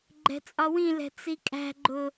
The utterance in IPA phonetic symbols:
ɡ͡ǃɛ̤t͡sʼɒwĩlɛ̤ t͡sikʼæ̤ɡ͡ǃʊ

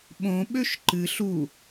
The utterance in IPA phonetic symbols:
ɓõɓøʃ ǃɨɬ u

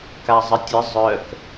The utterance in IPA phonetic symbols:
kazˤətʲə zˤœk

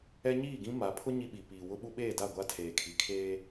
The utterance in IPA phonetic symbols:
ɛ˦ɲiː˦˨ɡĩ˦ ma˨˦pʰʊ˦ ɲi˦ɓi˨ piː˨wʊ˦ɓu˦ɓeː˦˨ da˦˨ɡʷa˦ tʰeː˨kʰi˨ kʰeː˦

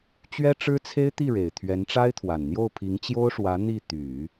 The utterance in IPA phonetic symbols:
t͡ɕɥɛ˥ʈ͡ʂɻ̩˥t͡sʰe˥ɪ̯t̪i˥˩ ɻe˨˩ɪ̯t̪ʰɥɛ˧˥nʈ͡ʂa˥ɪ̯t̪ʰwa˨˩n n̪jo˥˩ʊ̯pʰi˧˥ŋt͡ɕjo˥ʊ̯ʂwä˧˥ n̪i˥˩t̪y˨˩˦

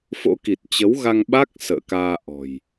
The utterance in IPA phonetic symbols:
fo̰˧˥ki˨˩t̚t͡ɕə˨˦w ɣa˧ŋɓa˦˥k̚ sə̰ː˧˨kaː˧ʔɔ̤˨˩j

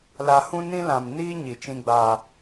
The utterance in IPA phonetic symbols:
la˨ hũ˦nĩ˦lã˨m niː˦ ɲi˨t͡ʃĩ˦ɡ͡ba˦

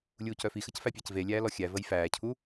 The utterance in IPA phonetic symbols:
lʲuːcœfixəc fæpʲæcvelʲæː lɔxʲævəj fæːcʰu

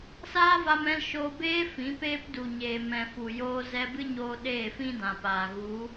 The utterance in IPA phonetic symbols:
saː˦va˧mɛ̃˧l ʃoː˧beː˦ fĩ˨˦peː˦p du˨ɲeː˨ mɛ̃˨fu˨joː˧ zɛ˧bɨ˦ɲoː˧ ɗeː˦˨fĩ˦dã˨paː˨ ɣu˨˦

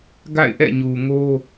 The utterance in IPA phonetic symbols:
ɡa̰˦˨ɪ̯ʔɛ̰˦˨ ɲu˨ŋo˦

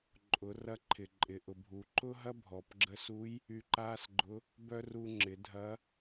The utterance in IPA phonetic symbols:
ǃʼʊ˩˧rɐ˧ǃʰɪ˩ ǃʼɪ˩ʔʊ˩bʱu˩˧ ǃʊ˥ ɦɐ˥bʱɔ˩p ɡ͡ǁə˧su˧˥j | y˧ǃaː˥sɡ͡ǃʊ˧˥ | bœ˥ ru˧ ŋ͡ǁɪ˩˧ dʱɐ˧˥

